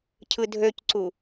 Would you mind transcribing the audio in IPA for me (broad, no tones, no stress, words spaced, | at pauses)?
cʰɯdʱøcǀu